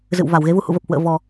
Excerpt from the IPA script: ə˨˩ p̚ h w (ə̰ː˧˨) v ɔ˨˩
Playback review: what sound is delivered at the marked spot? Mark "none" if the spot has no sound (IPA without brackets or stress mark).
ə̰ː˧˨